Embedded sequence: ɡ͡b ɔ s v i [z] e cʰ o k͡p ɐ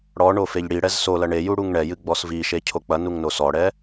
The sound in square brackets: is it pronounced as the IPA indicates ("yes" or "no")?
no